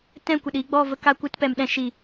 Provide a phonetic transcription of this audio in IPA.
t ɛ̃˦˨ kʷ ə˨ ɗ iː˧ ɡ͡b ɔ˦˨ v ə˧ k a˧ kʷ ɨ˦˨ t p ɛ˨ m ɗ ɛ̃˧ ʃ i˨

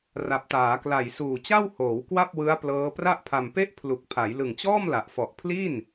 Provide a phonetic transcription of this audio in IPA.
r a˨˩ p̚ t aː˩˦ k l a˨˩ j s uː˨˩ t͡ɕ a˥˩ w h oː˩˦ w k w a˥˩ p̚ w ɯ˦˥ a̯ p l ɤː˦˥ p r a˥˩ ʔ pʰ a˧ m p e˥˩ ʔ pʰ l u˨˩ k̚ pʰ a˩˦ j l ɯ˨˩ ŋ t͡ɕ ɔː˥˩ m l a˨˩ ʔ f ɔ˨˩ ʔ pʰ l i˥˩ n

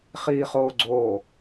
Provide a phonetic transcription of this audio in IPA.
χ iː χ oː ɡ͡ǀ oː

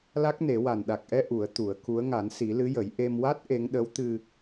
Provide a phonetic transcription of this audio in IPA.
l a˦˥ k̚ n e˨˩˦ w a˨˩ n ɗ a˨˩ k̚ ʔ ɛ˧ ʔ u˨˩˦ ə̯ t̪ u˨˩˦ ə̯ k u˧˥ ə̯ ŋ a˨˩˦ n s i˨˩˦ l ɨ˧˥ j ə˨˩˦ j ʔ e˧ m w a˦˥ t̚ ʔ e˧˥ ŋ ɗ ə˧˥ w t̪ ɨ˧

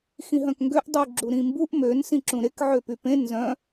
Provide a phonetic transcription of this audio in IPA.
x ĩ ɦ œ̃ k ŋ ɡ ø ʔ dˤ u ɡ͡ǁ u ɾ ĩ m b u ʔ m ø n s ĩ ǁ ũ ɾ e k ʕ ø p y p ẽ n z œ̃

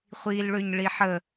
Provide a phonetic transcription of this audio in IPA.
χʷ iː l ɭ ø ɲ ɭ i ħ ə

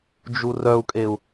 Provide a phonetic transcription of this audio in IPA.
d͡ʒ u r œ u̯ kʼ e u̯

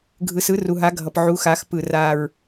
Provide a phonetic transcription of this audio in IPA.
ɡʱ ɯ˨ s ɯ˨˥ r u˨ ɦ a˨˥ ɡʱ ʌ˨ p ʕ u˨˥ x a˨˥ x p ɯ˦˨ r a˦˨ ɹ

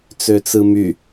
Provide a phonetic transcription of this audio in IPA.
t͡s ø t͡s ɯ m y

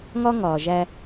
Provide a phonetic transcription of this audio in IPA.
ŋ ɒ˦ ŋ ɒː˨ ʒ æ˦

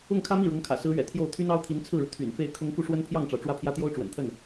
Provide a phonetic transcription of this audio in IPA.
ʊ˥˩ ŋ kʰ ä˥ m i˥˩ ɻ ɤ˧˥ ŋ kʰ ä̰˨˩ s ɹ̩˧˥ ɥ ɛ̰˨˩ t̪ʰ j o˥˩ ʊ̯ t̪ʰ y˥ n ɑ˥ ʊ̯ t̪ʰ i˧˥ n t͡sʰ ɹ̩˥˩ ɻ u˩ t̪ʰ y̰˨˩ n f e˥˩ ɪ̯ kʰ ʊ˥ ŋ k u˥˩ ʂ w ə˥ n pʰ j ɑ˥˩ ŋ ʈ͡ʂ ɑ˩ ʊ̯ ʈ͡ʂ w ä˥˩ pʰ j ä˥ t̪ j o˥ ʊ̯ ʈ͡ʂ w ə̰˨˩ n t̪ʰ ə˥˩ n

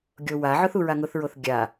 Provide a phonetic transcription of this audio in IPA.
ɡʲ o w a ʕ ʊ θ u ɹ a ŋ ʊ θ ɹ o θ ɡʲ a

